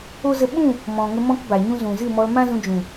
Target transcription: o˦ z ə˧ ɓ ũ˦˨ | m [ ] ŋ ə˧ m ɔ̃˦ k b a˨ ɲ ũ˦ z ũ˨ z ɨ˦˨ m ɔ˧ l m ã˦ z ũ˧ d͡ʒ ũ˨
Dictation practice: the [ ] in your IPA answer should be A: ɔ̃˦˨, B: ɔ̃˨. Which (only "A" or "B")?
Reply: B